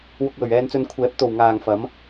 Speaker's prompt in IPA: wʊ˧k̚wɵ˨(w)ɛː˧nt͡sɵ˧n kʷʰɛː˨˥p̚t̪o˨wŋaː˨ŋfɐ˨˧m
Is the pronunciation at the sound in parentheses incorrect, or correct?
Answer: incorrect